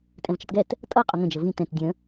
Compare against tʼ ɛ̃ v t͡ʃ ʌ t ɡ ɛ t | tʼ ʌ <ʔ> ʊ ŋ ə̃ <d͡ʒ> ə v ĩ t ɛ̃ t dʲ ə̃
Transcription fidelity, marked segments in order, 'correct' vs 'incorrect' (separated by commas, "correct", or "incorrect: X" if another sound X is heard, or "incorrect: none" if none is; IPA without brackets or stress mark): incorrect: qʼ, correct